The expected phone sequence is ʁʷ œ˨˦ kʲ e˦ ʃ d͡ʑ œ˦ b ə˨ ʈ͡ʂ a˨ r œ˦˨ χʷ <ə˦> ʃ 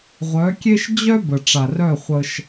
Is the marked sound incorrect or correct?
correct